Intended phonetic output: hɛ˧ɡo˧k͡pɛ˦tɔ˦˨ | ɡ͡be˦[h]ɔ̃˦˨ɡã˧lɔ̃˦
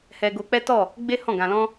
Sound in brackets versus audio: correct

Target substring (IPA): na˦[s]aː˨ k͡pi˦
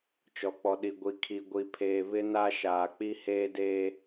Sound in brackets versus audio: incorrect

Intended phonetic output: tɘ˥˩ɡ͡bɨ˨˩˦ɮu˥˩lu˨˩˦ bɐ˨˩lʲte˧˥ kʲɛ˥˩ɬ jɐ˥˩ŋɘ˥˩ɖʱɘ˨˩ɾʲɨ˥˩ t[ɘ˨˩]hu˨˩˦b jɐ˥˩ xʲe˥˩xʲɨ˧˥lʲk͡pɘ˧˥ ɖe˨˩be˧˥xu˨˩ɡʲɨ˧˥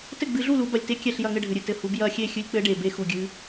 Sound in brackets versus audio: correct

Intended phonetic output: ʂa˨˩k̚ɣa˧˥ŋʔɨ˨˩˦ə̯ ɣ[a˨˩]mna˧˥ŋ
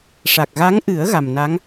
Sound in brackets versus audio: correct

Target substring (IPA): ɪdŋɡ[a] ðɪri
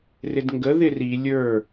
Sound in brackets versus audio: incorrect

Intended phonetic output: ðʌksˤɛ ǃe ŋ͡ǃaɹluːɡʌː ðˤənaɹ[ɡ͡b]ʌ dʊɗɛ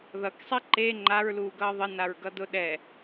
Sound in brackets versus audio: incorrect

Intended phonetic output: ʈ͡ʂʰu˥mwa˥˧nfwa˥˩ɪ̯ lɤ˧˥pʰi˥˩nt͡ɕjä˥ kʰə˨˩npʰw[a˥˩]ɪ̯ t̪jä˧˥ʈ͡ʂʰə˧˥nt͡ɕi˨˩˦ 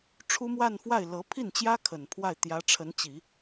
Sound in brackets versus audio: correct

